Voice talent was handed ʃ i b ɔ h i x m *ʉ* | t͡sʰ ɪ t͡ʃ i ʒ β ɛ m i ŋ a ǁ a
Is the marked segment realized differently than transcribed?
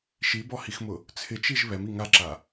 yes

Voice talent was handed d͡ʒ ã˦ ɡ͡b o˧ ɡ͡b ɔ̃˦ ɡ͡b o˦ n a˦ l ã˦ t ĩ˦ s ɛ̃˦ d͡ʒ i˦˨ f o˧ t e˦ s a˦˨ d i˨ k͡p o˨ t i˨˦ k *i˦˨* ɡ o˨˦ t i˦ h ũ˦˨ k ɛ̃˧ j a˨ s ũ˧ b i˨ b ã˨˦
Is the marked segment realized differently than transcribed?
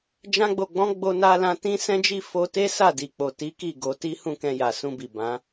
no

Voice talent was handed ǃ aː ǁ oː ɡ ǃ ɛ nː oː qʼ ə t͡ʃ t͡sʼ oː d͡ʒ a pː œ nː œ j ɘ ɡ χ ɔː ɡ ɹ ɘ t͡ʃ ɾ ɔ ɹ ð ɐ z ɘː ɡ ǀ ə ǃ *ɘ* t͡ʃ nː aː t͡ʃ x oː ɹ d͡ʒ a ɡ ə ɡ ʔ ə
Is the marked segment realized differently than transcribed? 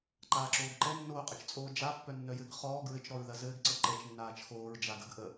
yes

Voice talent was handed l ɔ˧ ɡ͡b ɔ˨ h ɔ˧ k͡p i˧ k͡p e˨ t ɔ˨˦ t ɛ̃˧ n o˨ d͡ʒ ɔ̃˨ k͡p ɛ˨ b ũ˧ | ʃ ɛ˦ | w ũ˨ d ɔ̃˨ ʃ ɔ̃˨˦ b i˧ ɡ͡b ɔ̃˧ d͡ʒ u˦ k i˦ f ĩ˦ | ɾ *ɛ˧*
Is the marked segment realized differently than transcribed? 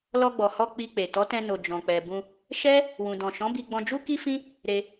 yes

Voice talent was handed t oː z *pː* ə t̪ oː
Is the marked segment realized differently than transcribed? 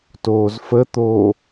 yes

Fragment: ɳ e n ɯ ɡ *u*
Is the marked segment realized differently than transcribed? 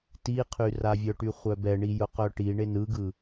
yes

